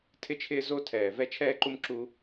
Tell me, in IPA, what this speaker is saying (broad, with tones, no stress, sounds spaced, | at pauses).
tʰ ɪ˦ t͡ʃʰ ɪː˦ z o˦ tʰ ɛː˨ v ɛ˦ t͡ʃʰ ɛː˦ ǃ u˦ m ǁ u˦